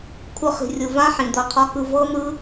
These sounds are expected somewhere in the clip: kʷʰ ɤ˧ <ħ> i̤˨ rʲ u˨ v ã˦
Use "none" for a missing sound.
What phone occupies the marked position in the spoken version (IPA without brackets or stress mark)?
χ